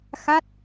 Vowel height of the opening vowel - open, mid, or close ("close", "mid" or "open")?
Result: open